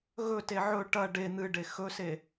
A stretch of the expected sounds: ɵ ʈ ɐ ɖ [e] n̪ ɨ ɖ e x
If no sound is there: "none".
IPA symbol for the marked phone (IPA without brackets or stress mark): e